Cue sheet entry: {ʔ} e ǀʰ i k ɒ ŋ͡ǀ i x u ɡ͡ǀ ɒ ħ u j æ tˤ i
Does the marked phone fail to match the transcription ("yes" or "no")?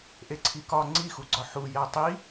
no